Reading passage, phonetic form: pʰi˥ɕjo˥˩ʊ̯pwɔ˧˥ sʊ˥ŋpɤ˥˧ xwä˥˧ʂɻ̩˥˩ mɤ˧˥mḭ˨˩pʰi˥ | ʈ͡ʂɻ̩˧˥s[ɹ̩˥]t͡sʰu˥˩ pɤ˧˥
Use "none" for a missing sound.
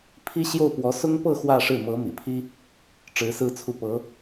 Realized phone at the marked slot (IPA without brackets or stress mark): ɹ̩˥˧